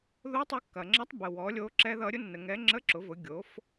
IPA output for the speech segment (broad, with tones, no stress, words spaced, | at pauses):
ðo˧˥ tˤu˧kːɐ˩ŋ͡ǁʌ˧˥tˤ bə˩ wɔ˩˧lʲo˧ ǁɛ˧ ðʌ˧ɾʲʊ˥ nːə˧ŋɛ˧˥ ŋ͡ǁə˧˥ǁʊ˩˧vʊ˩˧ ɡʲo˩˧f